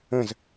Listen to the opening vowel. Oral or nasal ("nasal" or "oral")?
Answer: nasal